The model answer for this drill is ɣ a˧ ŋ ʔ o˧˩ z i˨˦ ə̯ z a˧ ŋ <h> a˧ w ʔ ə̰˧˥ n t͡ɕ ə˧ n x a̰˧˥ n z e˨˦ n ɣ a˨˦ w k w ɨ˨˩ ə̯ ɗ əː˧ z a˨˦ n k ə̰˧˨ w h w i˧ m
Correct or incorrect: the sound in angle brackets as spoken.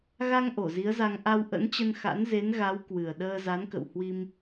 incorrect: ʔ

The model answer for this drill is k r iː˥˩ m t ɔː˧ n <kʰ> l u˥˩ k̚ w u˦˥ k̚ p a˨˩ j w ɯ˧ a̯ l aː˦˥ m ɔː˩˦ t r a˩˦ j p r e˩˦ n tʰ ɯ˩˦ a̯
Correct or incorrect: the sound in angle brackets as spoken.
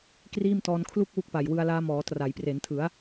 correct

